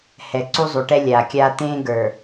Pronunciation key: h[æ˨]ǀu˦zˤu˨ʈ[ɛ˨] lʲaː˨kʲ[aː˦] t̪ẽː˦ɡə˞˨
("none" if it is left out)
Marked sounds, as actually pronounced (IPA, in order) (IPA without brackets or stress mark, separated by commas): ɛ˨, ɛ˦, aː˦